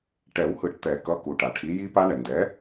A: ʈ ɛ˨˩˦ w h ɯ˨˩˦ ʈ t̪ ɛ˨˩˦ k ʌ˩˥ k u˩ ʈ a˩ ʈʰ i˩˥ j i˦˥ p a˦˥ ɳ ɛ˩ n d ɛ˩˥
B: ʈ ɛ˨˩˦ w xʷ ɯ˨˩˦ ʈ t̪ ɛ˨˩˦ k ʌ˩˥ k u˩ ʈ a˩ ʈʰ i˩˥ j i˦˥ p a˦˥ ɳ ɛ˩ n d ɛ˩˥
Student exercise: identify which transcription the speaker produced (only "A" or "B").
A